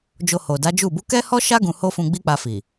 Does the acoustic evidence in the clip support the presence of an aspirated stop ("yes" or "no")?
no